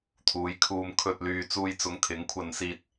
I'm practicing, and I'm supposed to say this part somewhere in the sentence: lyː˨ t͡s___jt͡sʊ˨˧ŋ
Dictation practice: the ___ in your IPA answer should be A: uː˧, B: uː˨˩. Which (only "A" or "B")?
A